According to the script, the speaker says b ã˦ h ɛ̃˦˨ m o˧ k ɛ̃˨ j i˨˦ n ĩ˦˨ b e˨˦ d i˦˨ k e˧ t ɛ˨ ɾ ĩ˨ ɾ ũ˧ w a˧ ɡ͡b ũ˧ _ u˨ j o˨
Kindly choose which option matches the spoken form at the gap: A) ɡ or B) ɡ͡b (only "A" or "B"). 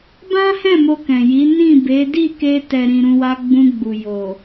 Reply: B